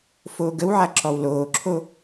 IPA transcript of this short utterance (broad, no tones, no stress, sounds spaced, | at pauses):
f oː ɡ ə w ʕ a ǁ ɔ w l oː ǁʰ o